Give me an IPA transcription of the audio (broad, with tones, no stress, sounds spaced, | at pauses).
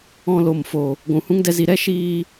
ɔ̃˧ l o˨ m f o˨ | ɡʷ ũ˨ h ũ˦ ŋ d ɛ˦ z i˧ ɾ ɛ˦ ʃ iː˧